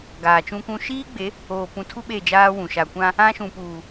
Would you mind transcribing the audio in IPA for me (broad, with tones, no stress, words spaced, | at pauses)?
ɡaː˨t͡ʃũ˦kʷũ˦ ʃiː˦ɡ͡be˨˦ | oː˨pũ˨tʰu˦ ɓe˦˨d͡ʒaː˦wũ˨ ʃa˨kʷã˦ | ã˦ʃũ˨puː˨